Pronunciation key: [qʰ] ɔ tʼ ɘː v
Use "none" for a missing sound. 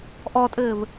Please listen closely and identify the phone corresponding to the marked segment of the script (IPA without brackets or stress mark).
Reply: ʔ